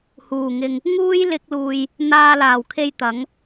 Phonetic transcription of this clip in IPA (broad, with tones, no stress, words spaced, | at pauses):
huː˨˩ŋɪ˨ŋ | ŋuː˥jlɪ˧k̚luː˨j | n̪aː˧laː˨˩wkʰe˧j t̪ɐ˨˥ŋ